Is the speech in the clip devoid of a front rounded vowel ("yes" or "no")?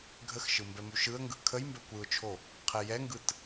yes